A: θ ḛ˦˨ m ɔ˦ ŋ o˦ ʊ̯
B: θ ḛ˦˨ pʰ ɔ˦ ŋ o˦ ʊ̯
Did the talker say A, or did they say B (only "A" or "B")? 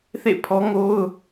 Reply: B